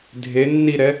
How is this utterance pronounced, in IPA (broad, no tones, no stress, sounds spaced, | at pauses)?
dʱ e nː i ɾ ɛ